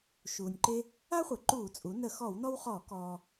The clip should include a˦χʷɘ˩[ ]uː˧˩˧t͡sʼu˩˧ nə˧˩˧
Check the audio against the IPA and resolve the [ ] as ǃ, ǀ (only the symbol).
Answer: ǃ